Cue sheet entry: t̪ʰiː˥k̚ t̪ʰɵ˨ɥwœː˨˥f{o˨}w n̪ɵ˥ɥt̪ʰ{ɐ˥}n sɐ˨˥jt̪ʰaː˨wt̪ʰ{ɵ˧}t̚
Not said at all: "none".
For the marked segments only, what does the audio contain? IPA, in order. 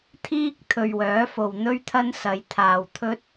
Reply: o˨, ɐ˥, ɵ˥

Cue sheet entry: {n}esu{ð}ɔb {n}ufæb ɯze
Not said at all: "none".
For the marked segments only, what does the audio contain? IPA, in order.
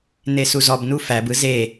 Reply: n, z, n

